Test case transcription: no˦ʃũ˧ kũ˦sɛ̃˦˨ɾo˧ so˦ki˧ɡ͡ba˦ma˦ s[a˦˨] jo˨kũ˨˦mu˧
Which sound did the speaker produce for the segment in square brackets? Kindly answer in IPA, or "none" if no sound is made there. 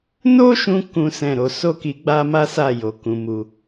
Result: a˦˨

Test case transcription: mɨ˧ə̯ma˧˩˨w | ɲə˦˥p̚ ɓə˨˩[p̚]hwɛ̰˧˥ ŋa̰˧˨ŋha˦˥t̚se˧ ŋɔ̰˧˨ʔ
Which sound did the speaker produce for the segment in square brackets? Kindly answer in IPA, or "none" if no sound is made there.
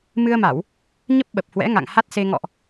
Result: p̚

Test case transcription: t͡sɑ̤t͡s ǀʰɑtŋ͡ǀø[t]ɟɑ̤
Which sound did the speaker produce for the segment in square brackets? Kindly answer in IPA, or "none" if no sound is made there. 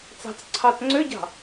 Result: none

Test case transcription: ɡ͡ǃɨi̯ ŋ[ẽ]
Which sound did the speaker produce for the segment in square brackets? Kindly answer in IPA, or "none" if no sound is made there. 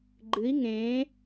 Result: ẽ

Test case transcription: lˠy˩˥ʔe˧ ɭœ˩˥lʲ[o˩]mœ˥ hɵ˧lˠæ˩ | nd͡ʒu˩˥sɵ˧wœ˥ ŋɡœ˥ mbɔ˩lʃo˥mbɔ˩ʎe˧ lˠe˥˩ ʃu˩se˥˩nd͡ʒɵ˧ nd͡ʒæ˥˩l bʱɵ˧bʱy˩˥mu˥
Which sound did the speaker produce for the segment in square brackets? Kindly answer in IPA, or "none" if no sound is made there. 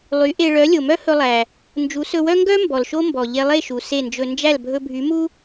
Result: o˩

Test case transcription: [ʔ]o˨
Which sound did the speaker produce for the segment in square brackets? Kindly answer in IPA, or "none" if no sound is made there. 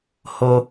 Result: h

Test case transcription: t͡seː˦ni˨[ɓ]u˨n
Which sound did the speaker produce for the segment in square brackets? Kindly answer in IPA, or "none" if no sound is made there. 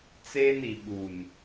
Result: ɓ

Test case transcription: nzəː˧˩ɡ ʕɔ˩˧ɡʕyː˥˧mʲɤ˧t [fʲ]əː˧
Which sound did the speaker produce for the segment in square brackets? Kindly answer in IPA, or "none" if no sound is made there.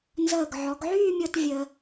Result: vʲ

